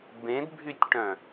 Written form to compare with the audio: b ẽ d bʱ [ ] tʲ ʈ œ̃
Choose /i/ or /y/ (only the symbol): y